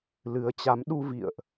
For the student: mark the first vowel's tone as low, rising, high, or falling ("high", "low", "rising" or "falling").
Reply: rising